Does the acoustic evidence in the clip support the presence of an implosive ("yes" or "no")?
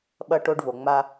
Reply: yes